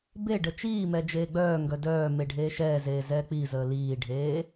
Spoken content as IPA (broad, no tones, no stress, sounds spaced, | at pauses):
b e ɖ ə t͡ʃ iː m ɛ d͡ʒ eː ɡ͡b œː ŋ ɡ œ d œː m e ɖʱ eː ʃ ɛː z eː z ɛː k͡p i z əː l iː ɖʱ eː